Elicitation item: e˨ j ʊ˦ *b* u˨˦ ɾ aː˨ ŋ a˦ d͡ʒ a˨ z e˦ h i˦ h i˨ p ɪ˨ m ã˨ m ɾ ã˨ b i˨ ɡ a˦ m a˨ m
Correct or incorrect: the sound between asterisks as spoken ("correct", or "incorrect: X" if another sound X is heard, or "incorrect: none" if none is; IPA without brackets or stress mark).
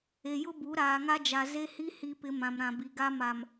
correct